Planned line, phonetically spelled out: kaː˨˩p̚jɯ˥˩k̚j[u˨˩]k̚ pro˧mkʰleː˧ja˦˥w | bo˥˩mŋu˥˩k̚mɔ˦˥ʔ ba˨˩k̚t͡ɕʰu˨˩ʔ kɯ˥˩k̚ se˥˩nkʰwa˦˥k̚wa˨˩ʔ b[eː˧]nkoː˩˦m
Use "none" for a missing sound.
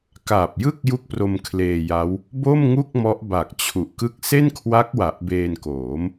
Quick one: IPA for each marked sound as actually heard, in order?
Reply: u˦˥, eː˧

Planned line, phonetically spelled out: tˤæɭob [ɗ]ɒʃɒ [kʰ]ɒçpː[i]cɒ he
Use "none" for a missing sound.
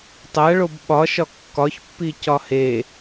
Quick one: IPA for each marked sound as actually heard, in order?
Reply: ɓ, kː, i

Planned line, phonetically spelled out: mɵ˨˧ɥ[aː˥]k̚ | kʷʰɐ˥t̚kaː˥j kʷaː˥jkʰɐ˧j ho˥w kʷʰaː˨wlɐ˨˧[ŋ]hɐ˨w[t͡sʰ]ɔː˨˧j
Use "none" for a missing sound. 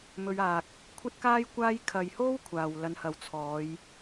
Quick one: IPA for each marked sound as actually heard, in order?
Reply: aː˨, n, t͡sʰ

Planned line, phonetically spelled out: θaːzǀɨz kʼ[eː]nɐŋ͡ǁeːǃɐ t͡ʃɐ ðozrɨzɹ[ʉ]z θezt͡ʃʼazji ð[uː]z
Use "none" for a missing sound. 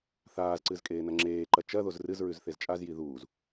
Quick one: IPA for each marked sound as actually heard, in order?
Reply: eː, ʉ, uː

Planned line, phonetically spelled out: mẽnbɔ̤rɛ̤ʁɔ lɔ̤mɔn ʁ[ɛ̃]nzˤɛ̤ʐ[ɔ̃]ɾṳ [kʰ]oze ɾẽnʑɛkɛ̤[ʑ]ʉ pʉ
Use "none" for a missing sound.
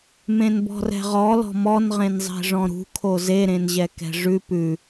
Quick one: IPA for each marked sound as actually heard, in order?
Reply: ẽ, ɔ̃, kʰ, ʐ

